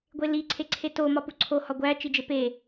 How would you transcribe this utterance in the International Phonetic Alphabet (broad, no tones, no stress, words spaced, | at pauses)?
ɡʷeli ǀʰeǀʰeto mɒpuǀʰo hɒɡʷæ t͡ʃid͡ʒepe